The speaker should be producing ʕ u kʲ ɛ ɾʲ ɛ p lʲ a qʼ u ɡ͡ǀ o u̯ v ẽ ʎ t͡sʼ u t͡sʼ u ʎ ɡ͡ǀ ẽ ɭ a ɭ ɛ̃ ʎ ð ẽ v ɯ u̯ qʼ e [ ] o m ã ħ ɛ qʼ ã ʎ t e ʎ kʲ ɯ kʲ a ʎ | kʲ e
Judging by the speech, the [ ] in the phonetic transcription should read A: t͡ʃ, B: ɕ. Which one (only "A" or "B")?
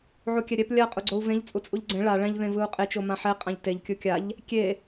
A